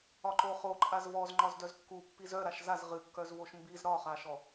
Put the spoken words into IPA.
ɒ ǃ o χ o ǃʼ a z v ɔ z ŋ͡ǃ ɒ z d œ z kː u pː i z œ ɾ a ʃ z a z ʁ ɨ kː œ z v o ʃ m b i z ɾ ɒ χ a ʃ ɔ

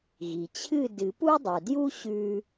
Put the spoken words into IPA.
ɣ i˩ t͡ɕʰ ɨ˥˨ d ɨ˨˩˦ p u˦ dˤ u˩ d j u˦ ɕ ʉ˦

